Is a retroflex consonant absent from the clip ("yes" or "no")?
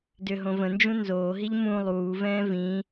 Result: yes